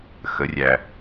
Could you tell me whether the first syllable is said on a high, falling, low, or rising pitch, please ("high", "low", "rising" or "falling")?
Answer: rising